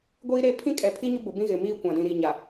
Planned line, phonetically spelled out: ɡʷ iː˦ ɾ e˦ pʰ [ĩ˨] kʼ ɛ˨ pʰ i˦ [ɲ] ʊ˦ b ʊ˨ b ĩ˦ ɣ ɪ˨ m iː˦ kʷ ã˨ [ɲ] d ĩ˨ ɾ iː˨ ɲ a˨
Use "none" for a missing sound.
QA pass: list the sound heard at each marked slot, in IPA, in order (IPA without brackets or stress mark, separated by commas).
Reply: ĩ˦, ɲ, none